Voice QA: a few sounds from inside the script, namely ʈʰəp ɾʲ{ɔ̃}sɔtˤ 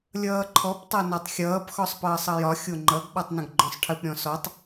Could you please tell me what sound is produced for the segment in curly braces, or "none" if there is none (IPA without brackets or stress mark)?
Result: ɔ̃